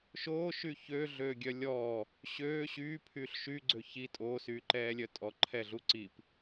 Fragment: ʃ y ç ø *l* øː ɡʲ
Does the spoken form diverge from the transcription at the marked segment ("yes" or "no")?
yes